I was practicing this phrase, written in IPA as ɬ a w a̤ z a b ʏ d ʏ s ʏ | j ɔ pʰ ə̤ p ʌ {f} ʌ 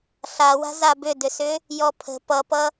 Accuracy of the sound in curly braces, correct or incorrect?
incorrect